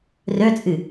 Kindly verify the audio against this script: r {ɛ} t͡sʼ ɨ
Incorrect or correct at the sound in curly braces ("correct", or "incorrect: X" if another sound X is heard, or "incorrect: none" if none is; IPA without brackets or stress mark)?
incorrect: œ